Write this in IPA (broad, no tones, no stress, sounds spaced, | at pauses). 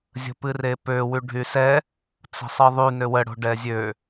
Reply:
zʲ ə̤ p ɨ r e p ø w y ɖʱ y s ɛ | t͡s ə̤ sˤ ɨ ðˤ y n ø w ə ɽ o̤ ɖ ɛ zʲ ø